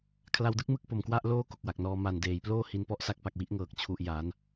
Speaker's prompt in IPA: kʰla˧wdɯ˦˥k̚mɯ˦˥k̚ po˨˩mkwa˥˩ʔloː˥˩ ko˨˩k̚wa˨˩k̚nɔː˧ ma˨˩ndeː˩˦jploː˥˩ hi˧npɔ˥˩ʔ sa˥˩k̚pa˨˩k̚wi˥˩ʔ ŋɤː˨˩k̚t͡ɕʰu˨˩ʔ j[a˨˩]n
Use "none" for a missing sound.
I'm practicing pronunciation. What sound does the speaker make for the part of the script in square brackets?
a˩˦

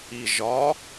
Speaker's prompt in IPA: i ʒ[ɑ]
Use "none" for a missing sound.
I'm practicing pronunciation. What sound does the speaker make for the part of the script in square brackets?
ɒ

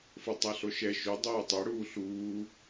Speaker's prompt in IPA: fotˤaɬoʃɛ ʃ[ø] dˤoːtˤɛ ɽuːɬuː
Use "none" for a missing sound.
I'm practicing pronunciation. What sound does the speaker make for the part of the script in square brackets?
ø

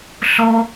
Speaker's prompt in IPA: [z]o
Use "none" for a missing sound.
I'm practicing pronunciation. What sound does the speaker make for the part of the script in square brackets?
ɬ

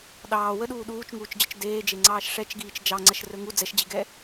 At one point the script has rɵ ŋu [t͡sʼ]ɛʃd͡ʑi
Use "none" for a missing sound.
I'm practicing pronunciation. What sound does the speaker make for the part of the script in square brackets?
d͡z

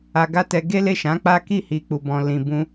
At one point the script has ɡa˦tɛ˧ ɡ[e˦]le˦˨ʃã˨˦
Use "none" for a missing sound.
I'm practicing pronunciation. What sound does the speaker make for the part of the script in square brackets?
e˦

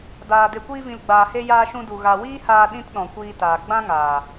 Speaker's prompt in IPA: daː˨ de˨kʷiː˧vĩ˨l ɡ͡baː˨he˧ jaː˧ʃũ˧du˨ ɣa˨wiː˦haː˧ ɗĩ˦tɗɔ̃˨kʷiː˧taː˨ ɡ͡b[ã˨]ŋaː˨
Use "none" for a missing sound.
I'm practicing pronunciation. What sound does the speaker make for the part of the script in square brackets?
ã˦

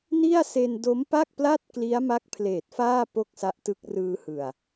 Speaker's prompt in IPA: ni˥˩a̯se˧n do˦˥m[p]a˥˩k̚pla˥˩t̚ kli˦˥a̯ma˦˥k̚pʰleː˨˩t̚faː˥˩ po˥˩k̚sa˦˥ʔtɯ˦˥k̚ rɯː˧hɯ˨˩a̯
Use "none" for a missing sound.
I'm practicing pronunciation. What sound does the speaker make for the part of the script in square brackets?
p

